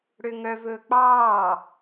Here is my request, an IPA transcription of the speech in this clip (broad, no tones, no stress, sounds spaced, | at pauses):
ɽ ø ŋ œ v ɵː k͡p ɑː